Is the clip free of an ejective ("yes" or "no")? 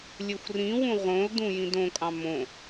no